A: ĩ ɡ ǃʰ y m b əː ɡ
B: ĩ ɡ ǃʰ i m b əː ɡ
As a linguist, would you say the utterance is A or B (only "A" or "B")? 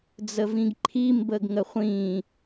B